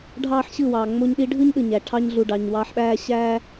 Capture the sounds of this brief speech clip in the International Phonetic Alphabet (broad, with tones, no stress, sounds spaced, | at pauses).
ɖʱ ɑː˦ ħ ɕ ɯ˦˨ w ɑː˨ ŋ͡m o˦ ɲ ɗ i˦ ɖʱ ɯ˦ ɲ ɗ ɯ˨ ɲ æ˨ ʈʰ ɑ˦ ɲ ɮ u˨ ɖ ɑ˨ ɲ w ɑː˦ ħ ɓ æː˦ ɕ æː˦